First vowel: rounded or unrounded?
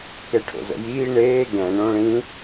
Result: unrounded